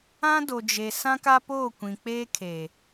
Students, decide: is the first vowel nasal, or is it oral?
nasal